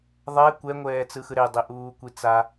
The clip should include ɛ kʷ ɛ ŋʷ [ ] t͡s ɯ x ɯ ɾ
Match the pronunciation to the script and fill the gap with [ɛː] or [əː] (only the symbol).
ɛː